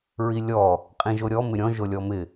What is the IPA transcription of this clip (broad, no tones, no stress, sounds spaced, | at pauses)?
ɹ i lʲ ɔ | qʼ ĩ ʒ o ɾʲ ɔ m ɪ ɾʲ ɔ̃ ʒ o lʲ ɔ m ɪ